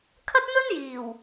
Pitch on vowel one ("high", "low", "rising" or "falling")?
high